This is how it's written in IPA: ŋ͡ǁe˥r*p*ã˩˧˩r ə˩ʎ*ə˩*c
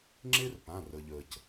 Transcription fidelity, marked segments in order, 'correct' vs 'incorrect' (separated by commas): correct, correct